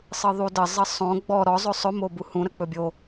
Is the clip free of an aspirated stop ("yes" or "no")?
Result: yes